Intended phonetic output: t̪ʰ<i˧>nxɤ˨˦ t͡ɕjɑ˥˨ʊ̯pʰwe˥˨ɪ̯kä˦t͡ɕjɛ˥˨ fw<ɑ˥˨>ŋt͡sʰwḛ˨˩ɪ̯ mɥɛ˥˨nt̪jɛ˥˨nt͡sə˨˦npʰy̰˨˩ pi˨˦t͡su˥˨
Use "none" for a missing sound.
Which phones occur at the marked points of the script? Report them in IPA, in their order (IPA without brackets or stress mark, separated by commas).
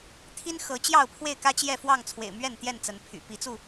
i˦, ɑ˥˨